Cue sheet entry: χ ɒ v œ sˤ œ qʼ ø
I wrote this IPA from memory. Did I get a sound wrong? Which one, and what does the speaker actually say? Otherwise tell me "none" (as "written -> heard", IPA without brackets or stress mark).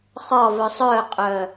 ø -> œ